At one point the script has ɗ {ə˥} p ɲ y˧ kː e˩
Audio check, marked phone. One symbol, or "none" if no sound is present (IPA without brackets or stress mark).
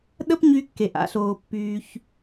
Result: ə˥